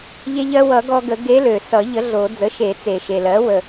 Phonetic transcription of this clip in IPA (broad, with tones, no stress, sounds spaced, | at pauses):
ʎ e˧ ʎ ɜ˧ w ʌ˨˩˦ ɡ ɔ˧ ɡ ə˨˩˦ ɡ e˧˥ l ø˨˩ s ʌ˨˩˦ ʎ ə˩˥ ɮ o˨˩˦ d͡z ə˩˥ ʃ e˨˩˦ t͡s e˨˩ ʃ e˨˩ l ɜ˩˥ w ə˨˩